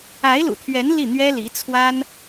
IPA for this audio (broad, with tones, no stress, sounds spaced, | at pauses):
a˧˥ ɪ̯ l ṵ˨˩ t̪ʰ ɥ ɛ˧˥ n l i˥˩ n̪ ɥ ɛ˥ l i˧˥ t͡sʰ w a˥ n